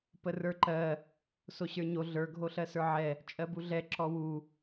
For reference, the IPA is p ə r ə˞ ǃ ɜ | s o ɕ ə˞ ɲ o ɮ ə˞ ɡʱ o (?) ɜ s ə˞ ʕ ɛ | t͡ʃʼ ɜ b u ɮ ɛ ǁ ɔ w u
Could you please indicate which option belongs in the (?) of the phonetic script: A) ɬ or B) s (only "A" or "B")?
A